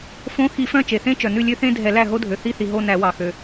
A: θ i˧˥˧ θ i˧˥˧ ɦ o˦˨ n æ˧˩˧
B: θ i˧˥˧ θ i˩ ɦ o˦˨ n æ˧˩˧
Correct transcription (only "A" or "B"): B